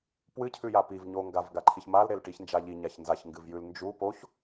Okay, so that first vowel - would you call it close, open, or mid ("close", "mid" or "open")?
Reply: close